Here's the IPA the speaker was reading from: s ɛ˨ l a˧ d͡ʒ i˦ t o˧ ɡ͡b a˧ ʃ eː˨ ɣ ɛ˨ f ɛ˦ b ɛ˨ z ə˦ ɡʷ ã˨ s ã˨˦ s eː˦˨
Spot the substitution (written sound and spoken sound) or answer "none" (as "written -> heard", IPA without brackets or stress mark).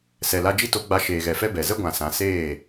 none